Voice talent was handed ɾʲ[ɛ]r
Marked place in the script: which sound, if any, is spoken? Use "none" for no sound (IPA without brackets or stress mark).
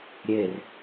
e